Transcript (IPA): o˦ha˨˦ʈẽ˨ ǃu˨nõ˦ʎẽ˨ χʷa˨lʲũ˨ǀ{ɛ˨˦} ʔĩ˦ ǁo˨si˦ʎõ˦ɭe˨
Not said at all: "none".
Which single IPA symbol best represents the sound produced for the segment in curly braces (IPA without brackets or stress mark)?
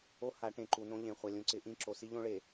ɪ˨˦